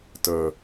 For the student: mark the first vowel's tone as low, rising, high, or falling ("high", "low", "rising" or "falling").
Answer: low